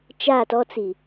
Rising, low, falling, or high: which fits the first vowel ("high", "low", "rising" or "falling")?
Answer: falling